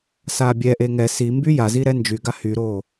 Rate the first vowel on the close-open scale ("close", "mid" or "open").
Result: open